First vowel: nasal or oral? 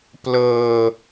oral